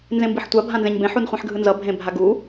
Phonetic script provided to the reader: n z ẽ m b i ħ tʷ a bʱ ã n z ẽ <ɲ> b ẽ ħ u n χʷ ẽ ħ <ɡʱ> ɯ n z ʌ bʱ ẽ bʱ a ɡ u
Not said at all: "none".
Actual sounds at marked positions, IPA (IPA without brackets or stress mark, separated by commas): ɲ, ɡʱ